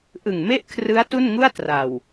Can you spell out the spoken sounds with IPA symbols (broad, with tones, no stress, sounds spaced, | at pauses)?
ʔ ɯ˨˩ ŋ m e˥˩ ʔ kʰ r ɯ˦˥ a̯ t u˥˩ n ŋ u˥˩ a̯ t r a˨˩ w